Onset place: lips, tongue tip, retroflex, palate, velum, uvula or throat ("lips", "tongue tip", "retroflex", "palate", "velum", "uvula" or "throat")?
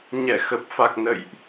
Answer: palate